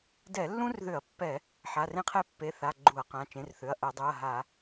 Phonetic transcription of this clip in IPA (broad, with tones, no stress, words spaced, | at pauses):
dɛ˧˩˧lːũ˥rðʏ˧˩˧ɐ̯pːɛ˧˩˧ | ħa˩˧˩rẽ˥qʰɛ˥ pːe˩˧˩θa˩˧˩ ɡ͡ǃu˧˩˧ɐ̯qã˩˧˩ t͡ʃẽ˩˧˩rθʏ˩˧˩ɐ̯ʔɜ˧˩˧dˤu˩˧˩ɐ̯ ɦa˧˩˧